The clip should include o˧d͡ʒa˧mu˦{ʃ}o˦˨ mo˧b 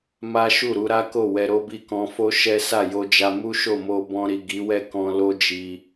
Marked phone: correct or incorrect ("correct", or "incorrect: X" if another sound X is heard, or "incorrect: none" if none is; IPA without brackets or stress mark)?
correct